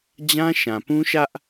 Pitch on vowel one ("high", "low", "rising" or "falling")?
high